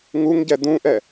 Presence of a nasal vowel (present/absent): present